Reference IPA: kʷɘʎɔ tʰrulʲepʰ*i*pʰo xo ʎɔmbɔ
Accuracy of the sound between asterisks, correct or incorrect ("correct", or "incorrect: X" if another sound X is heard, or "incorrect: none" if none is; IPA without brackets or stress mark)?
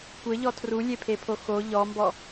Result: incorrect: e